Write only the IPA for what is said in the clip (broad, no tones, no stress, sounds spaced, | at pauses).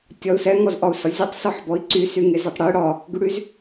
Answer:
tʲ ɒ u̯ s ɛ ŋ ɔ z ʔ ɒ u̯ s ɒ zʲ ɔ tˤ s ɔ ħ b ɔ i̯ ǀ y s y ŋ e z ə tˤ ɽ y ɽ ɒ | ɡ y ɽ y z